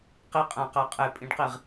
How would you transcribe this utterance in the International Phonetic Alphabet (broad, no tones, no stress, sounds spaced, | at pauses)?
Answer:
q i qʼ æ̃ q æ qʼ e pʼ ĩ ɖ q i ʁ